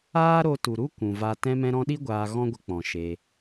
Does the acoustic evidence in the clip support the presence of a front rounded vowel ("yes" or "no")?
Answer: no